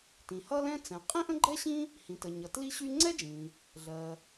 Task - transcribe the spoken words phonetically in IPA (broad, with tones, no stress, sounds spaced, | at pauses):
t ĩ˩ h ʌ˥ l ɛ̃˥ t͡s ɛ̃˩ qʼ ĩ˥ ʔ ə̃˥ ɡ͡ǃ ɛ˥ ɕ ĩ˥ | h ĩ˩ t ə˩ ɲ ʌ˩ t l i˥ ɕ y˥ ŋ͡ǀ ɛ˥ d͡ʒ ĩ˩ | ɮ ɜ˩